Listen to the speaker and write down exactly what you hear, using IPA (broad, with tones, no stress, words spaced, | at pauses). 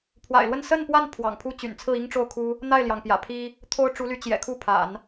pʰwa̰˨˩ɪ̯lwə˥˧n sə˥˧npwa˥˩n pʰwɑ̰˨˩ŋpʰu˥t͡ɕy̰˨˩n t͡sʰɹ̩˥˩i˥ŋʈ͡ʂo˥˩ʊ̯kʰu˥ | n̪a˥˩ɪ̯ljɑ˩ŋpjä̰˨˩pʰi˥ | t̪ʰo˥ʊ̯ ʈ͡ʂu˧˥ly˧˥ t͡ɕjɛ̰˨˩kʰu˥˩pʰa̰˨˩˦n